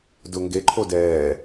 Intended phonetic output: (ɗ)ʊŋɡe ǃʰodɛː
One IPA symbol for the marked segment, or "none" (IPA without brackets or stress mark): d